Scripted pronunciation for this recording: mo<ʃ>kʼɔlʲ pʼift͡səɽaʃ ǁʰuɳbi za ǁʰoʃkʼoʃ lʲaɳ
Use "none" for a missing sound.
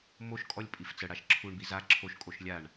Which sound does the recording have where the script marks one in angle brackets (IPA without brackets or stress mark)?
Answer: ʃ